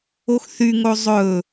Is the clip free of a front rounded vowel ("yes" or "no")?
no